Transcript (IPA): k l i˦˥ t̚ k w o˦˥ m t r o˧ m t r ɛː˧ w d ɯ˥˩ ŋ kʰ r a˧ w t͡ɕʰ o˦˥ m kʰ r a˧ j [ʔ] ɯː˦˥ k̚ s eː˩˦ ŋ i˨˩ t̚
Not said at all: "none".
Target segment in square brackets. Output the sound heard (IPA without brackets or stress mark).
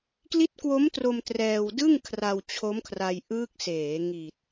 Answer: ʔ